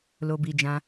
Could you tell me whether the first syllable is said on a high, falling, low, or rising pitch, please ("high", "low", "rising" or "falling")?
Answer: low